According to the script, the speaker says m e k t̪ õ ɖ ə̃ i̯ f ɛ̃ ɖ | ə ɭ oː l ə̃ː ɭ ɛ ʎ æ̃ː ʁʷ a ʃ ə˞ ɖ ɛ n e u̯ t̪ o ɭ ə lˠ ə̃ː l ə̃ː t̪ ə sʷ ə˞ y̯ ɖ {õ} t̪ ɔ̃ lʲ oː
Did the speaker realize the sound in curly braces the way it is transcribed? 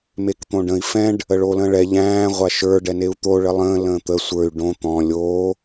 yes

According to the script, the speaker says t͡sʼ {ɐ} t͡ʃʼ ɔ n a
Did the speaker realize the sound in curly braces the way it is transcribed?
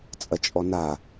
yes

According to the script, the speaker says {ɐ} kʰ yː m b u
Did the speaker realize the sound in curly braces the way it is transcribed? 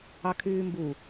no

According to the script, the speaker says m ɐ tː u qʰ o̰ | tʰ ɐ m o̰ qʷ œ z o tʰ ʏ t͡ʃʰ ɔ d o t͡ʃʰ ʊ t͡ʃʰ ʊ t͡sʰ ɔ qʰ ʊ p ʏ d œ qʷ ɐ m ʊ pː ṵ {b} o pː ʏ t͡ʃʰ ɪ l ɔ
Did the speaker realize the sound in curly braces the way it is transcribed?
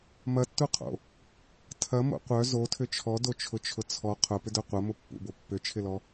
yes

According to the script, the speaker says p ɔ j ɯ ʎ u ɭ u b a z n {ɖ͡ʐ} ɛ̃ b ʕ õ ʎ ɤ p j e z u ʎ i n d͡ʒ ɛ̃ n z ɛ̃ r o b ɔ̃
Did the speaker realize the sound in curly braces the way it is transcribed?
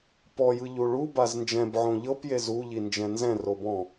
no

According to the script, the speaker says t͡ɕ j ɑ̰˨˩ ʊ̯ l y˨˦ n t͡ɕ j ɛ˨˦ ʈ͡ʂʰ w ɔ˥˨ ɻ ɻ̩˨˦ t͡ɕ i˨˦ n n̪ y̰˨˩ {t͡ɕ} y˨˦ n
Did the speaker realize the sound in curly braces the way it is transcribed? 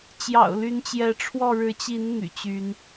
yes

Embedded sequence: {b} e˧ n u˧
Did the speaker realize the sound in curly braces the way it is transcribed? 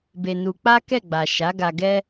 yes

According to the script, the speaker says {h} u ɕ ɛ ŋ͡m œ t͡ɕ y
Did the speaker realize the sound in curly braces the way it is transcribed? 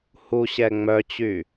yes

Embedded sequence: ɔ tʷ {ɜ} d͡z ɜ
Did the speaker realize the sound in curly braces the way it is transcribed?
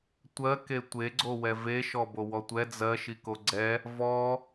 no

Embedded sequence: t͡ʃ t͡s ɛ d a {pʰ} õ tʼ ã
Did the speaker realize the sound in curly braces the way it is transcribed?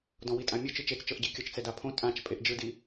yes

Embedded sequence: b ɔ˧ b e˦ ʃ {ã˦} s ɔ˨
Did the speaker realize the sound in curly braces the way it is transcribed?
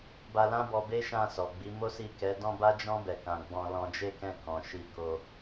no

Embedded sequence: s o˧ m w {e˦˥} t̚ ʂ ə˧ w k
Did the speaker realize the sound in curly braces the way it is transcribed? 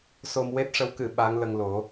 yes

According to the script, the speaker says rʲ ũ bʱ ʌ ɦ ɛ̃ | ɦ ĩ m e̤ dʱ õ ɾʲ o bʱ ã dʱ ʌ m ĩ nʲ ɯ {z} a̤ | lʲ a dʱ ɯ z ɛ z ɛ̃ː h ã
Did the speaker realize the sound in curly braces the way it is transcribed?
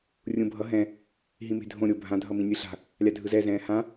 no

